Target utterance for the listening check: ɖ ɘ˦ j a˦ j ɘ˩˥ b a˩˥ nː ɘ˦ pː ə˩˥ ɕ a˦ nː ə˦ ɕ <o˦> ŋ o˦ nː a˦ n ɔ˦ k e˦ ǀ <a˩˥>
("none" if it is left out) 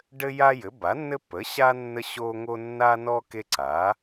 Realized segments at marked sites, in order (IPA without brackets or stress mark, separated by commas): o˦, a˩˥